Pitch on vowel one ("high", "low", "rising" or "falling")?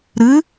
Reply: rising